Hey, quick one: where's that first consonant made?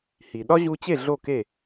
throat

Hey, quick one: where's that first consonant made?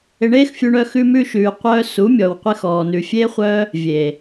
retroflex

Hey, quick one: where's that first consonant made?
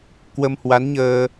velum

